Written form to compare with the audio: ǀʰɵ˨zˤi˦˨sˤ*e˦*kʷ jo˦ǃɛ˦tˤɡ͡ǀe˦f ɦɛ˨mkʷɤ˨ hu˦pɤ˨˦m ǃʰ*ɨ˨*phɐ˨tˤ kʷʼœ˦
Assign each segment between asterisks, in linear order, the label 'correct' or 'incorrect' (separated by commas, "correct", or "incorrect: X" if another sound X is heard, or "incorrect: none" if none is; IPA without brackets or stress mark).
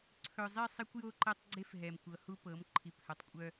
correct, incorrect: i˨